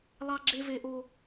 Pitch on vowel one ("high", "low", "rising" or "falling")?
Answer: high